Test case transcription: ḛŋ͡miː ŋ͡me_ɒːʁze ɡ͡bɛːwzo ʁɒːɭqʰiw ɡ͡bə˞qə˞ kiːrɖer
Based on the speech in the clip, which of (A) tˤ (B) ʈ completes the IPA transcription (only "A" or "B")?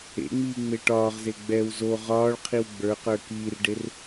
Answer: B